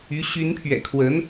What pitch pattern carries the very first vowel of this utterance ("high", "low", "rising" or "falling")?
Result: rising